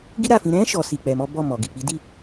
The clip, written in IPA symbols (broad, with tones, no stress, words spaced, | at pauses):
ɡi˦ɾa˦˨fĩ˧ ɾɛ̃˦ ʃɔ˦ si˧k͡pɛ˧mɔ˦ bɔ˦˨mɔ˨ ɡi˨k͡pi˨˦di˦˨